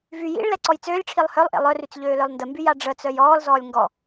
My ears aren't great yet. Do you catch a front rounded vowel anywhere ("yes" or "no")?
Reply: yes